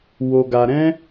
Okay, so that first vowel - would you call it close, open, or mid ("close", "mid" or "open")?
mid